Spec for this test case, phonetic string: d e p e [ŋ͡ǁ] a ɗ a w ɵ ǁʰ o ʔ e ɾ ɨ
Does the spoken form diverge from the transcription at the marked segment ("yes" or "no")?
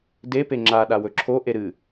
no